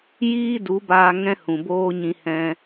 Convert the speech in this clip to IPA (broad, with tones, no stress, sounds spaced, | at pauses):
j iː˦ d u˨˦ b aː˧ ŋ ɛ̃˦ h ũ˨ b oː˦ ɲ ĩ˧ h ɛ̃˦